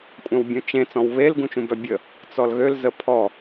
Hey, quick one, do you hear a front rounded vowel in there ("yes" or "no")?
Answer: yes